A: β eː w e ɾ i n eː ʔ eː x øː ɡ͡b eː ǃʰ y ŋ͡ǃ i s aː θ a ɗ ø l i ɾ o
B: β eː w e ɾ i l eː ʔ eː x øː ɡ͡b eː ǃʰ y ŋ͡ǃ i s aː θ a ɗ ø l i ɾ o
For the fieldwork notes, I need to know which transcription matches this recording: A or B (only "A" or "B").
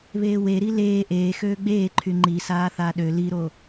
B